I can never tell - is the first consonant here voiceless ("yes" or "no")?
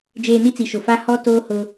no